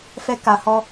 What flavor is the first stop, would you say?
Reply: plain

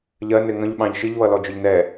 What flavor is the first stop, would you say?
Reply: implosive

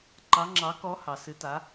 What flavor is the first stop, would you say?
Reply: click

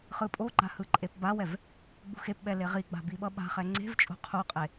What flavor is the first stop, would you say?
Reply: ejective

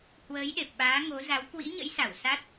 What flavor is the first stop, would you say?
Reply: implosive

